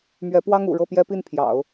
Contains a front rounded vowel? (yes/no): no